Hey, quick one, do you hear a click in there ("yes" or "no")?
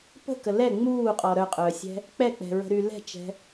no